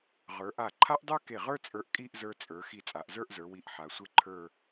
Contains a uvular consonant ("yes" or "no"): yes